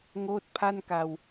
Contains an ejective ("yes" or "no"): no